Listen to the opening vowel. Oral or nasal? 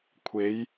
oral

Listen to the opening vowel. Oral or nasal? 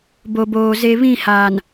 oral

